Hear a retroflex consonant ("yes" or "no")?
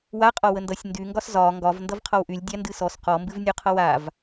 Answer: no